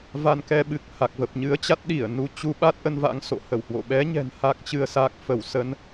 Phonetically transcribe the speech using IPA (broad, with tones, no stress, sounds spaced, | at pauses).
v a˧ n k ɛ˧ ɓ ɨ˨˩ k̚ h a˨˩ k̚ v ə˨˩ p̚ ɲ ɨ˨˦ ə̯ t͡ɕ a˦˥ t̚ ɗ i˧˩ ə̯ n u˨˦ t͡ɕ u˨˦ ɓ a˦˥ t̚ ʔ ə˧ n v a̰˧˥ ŋ s o̰˧˨ h ə˧˩ w h w o̰˧˨ ɓ ɛ˨˦ ɲ ɛ̤˨˩ n h a˦˥ k̚ t͡ɕ ɨ˧ ə̯ s a˦˥ k̚ f ə˧˩ w s ə˧ n